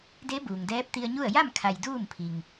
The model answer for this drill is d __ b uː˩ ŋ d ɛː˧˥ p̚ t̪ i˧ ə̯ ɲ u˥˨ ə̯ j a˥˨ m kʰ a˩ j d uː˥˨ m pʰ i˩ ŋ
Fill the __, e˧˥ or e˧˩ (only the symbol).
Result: e˧˥